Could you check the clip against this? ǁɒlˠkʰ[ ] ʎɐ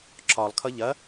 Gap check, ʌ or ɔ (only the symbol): ʌ